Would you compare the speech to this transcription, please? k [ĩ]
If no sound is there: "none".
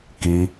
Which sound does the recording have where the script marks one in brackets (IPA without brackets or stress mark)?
i